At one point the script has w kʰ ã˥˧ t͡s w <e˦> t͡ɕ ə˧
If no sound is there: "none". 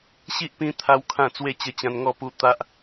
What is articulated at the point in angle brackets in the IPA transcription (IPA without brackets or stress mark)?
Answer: e˥˧